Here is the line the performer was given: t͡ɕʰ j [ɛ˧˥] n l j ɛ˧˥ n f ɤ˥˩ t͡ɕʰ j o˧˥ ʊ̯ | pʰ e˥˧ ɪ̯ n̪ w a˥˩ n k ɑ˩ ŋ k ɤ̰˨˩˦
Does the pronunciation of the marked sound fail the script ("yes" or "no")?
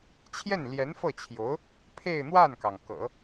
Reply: yes